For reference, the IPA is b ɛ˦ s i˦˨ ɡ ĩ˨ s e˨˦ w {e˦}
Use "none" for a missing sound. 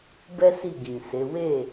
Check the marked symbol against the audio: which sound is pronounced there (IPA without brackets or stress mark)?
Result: e˦˨